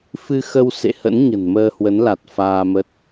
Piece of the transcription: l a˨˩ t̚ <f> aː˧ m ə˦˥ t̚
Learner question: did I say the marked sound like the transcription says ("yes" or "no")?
yes